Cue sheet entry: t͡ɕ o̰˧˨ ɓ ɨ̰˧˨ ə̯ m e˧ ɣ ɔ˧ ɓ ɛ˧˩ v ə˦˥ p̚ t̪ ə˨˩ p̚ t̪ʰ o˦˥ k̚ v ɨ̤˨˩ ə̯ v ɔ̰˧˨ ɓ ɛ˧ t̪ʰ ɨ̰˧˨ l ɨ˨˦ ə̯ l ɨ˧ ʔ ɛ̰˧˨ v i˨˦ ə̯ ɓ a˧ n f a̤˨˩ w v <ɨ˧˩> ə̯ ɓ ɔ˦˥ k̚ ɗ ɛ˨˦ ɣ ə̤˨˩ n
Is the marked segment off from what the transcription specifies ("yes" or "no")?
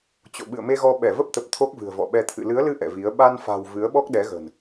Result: yes